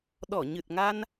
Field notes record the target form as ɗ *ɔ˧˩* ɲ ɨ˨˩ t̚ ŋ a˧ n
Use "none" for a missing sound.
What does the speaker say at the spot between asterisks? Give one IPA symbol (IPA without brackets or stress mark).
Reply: ɔ˧˩